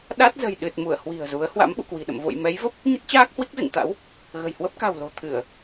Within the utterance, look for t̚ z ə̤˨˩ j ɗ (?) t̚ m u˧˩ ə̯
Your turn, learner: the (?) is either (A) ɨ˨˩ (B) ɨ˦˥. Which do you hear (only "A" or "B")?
A